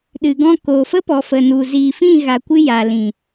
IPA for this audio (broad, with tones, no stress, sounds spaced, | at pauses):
ɗ ɨ˨ ɡ ɔ̃˦˨ k oː˨ f ə˦ p ɔ˨ f ə˨ n u˨ z iː˨ f ĩ˦˨ ɣ a˨ kʷ ɨ˧ j a˨ l ĩ˨